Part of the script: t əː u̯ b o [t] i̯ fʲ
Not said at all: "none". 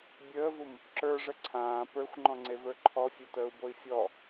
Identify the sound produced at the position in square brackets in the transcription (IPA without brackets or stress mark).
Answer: none